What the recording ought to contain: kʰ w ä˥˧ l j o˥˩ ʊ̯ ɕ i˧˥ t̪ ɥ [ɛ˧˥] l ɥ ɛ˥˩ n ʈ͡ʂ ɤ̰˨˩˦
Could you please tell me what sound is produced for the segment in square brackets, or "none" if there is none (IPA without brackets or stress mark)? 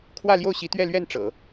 ɛ˥˧